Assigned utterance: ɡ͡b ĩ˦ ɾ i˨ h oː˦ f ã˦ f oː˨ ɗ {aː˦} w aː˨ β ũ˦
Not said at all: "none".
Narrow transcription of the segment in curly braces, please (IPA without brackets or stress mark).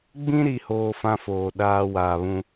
aː˦